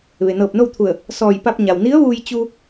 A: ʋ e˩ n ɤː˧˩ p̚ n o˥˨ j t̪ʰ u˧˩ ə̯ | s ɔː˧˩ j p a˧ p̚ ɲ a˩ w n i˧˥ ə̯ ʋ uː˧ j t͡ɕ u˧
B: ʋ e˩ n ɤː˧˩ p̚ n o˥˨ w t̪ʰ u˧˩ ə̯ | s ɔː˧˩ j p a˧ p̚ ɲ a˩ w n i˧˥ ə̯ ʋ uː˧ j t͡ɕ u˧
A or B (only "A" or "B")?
B